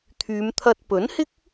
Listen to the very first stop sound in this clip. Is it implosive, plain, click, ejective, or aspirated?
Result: aspirated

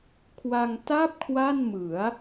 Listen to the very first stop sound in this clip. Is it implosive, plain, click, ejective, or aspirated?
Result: aspirated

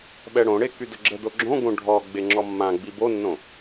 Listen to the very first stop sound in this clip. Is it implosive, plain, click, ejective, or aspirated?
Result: implosive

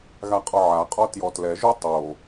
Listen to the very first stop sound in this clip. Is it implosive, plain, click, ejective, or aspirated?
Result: ejective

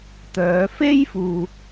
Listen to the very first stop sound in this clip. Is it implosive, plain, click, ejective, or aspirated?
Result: plain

